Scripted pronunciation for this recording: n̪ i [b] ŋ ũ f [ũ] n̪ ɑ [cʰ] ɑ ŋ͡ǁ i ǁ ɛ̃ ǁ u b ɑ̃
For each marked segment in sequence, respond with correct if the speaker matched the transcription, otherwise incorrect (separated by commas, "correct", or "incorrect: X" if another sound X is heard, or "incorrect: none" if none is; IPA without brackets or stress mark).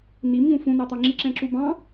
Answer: incorrect: m, correct, incorrect: t̪